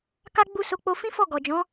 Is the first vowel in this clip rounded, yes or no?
no